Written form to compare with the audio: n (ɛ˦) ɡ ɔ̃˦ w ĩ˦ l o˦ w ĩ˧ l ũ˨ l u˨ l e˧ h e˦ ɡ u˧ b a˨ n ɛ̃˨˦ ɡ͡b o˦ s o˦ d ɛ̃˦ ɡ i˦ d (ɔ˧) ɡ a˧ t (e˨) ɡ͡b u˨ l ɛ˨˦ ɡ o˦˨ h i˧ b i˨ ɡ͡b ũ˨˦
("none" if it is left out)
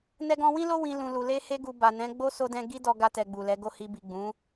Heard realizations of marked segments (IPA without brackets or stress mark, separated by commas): ɛ˦, ɔ˧, ɛ˨